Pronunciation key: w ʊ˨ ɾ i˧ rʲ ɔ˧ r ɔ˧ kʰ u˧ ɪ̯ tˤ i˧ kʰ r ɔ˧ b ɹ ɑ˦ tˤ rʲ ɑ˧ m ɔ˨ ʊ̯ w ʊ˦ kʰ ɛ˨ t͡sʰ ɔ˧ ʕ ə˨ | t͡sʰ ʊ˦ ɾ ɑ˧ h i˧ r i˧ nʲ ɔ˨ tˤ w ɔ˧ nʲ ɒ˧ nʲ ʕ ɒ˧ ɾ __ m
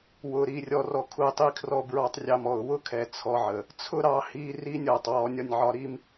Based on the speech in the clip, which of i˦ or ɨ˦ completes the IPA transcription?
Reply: i˦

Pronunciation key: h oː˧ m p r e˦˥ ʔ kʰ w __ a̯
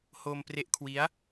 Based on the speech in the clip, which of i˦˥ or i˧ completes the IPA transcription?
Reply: i˦˥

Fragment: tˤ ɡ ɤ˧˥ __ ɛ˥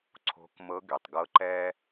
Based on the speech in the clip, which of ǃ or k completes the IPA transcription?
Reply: ǃ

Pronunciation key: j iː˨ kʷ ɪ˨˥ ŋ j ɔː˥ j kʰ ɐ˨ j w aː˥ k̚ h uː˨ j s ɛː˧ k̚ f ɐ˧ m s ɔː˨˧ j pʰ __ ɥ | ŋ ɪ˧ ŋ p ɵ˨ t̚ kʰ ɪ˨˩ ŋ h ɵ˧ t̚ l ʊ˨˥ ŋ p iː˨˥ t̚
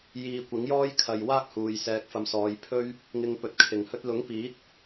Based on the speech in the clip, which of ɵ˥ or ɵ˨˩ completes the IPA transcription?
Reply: ɵ˥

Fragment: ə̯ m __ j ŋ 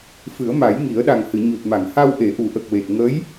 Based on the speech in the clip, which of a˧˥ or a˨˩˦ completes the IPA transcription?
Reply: a˨˩˦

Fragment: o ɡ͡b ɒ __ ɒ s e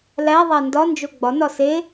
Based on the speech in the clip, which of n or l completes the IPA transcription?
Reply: n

